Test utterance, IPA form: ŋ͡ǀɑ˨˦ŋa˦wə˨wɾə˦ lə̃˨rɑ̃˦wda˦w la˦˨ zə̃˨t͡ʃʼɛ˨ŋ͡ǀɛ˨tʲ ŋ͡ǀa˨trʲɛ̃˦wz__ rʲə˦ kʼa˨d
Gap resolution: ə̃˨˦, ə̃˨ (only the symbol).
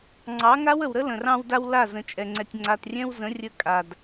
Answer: ə̃˨˦